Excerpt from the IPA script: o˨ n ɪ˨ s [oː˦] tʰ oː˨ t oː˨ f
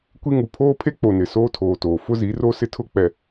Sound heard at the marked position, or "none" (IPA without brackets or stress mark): oː˦